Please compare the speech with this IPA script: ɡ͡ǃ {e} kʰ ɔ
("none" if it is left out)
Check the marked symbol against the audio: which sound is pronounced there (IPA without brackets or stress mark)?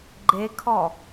e